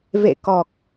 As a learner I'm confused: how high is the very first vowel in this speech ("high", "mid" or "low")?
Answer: mid